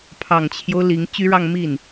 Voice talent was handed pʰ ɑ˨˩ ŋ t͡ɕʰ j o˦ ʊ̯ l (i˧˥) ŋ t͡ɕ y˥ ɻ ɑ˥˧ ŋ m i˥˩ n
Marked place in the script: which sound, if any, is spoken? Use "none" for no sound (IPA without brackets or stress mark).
i˧˥